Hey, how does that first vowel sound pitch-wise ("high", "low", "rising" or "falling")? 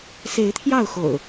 rising